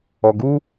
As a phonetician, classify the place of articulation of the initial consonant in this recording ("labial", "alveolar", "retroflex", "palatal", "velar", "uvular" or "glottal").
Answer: velar